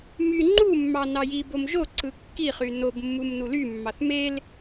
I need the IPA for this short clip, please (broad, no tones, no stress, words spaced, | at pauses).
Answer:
my ŋ͡ǃumːɑ nɑjibom ʒoǀɯ kːiχy nobmːum nulymːɑθ mel